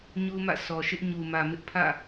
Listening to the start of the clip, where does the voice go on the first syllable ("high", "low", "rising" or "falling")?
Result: high